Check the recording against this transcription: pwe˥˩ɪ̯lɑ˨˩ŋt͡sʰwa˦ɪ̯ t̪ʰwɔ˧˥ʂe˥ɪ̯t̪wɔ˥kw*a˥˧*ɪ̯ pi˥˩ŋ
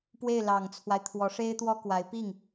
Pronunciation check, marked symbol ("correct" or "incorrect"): incorrect